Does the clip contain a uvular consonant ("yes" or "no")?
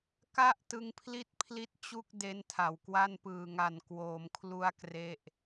no